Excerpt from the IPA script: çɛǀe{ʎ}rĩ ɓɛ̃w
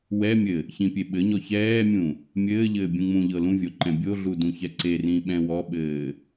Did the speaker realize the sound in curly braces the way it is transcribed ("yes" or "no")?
no